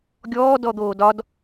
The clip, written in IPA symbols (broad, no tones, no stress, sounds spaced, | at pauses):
ɡʲ ɔː d ɔ d̪ oː d ɒ d